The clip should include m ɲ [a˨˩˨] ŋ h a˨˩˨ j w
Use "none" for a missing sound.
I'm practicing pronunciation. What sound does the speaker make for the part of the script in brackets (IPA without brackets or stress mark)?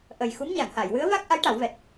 a˨˩˨